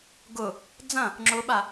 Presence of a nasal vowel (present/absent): present